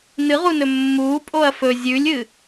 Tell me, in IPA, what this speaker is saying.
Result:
nɨʁunɵ mːuːpʼoɐ̯ fɵ zʲʉlʲɨ

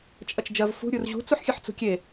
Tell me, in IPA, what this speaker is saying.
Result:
t͡ʃʼɐt͡ʃd͡ʒɐv fṳ ɾʲurʑṳ t͡suħxʲɨħt͡sṳkʲe

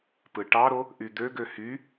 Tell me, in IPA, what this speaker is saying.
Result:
pɯʈɑɾo | ʔyd̪øɡø hy

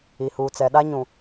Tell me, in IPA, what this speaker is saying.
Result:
i˨huː˨t͡sɛ˨ɗa˦ ɲũ˨

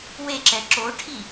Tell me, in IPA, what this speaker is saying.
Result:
weǁɛ ǁoʈʰi

